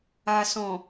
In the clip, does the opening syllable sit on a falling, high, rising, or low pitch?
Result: low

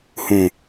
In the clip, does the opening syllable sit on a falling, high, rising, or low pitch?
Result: low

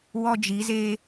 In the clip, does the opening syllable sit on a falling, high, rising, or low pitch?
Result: high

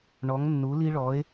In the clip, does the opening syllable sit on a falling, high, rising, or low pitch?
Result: rising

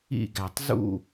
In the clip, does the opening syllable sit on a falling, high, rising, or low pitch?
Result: falling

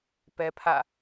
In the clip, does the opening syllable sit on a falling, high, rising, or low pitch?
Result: high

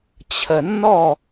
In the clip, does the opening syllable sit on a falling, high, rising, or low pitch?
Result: low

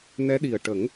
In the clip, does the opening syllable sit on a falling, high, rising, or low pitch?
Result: rising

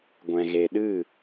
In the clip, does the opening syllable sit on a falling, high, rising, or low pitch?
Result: low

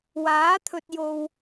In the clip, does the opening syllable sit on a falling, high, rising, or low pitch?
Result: rising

